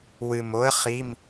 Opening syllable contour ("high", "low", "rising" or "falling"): low